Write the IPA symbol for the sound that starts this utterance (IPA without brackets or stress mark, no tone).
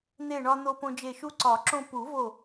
n̪